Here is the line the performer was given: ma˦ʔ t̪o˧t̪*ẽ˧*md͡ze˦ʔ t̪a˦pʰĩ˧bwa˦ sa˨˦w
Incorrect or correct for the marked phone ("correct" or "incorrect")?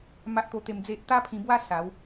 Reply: incorrect